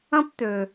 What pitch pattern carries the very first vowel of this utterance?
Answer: high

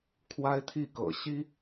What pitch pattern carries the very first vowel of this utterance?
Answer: high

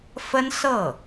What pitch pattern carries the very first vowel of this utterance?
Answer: high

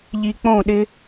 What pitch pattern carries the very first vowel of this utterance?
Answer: low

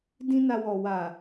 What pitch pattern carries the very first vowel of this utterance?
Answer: high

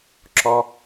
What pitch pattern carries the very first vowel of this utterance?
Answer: low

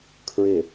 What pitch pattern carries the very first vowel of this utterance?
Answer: low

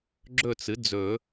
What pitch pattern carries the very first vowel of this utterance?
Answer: falling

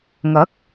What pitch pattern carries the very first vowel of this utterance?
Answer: rising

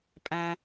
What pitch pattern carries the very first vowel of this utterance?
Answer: high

